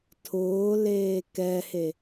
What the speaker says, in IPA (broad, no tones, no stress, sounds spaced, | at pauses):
tʰ ʊː l eː k ɛ h e